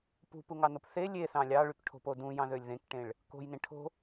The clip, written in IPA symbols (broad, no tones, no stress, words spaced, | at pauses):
pṳpuŋɑnop θe lʲeθɑ̃ lʲɑɭykʈʰo̤po dũjɑ̃ðølʲ ðẽkʈẽɭ | ko̤jnẽ ʈʰo̤